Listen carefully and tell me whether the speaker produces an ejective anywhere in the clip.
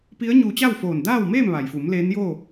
no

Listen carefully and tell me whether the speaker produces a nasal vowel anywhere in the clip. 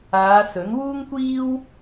no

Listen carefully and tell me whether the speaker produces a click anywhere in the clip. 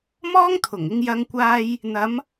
no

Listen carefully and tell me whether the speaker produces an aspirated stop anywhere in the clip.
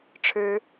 yes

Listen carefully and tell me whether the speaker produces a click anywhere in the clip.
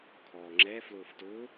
yes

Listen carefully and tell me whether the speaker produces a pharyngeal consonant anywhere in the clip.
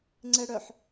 yes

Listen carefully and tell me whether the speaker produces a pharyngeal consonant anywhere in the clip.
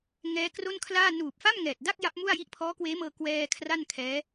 no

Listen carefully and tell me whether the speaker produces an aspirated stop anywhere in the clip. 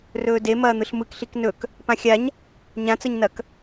no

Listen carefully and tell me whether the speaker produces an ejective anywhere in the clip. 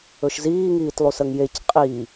yes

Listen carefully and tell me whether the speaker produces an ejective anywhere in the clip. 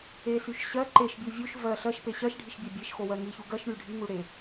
no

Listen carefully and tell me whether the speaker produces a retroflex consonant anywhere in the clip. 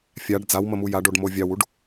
yes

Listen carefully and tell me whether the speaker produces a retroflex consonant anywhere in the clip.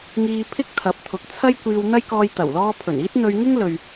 no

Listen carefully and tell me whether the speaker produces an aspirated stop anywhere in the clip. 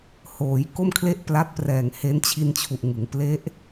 yes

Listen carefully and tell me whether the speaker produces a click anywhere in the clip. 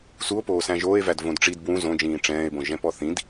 no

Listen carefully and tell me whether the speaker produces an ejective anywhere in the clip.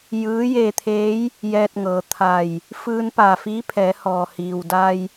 no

